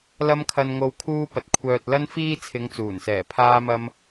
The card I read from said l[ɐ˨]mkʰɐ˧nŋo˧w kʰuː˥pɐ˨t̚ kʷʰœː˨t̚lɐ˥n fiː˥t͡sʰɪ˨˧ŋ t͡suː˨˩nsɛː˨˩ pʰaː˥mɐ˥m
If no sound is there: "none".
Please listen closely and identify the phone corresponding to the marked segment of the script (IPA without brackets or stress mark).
ɐ˥